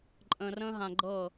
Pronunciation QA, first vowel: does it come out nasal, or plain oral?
nasal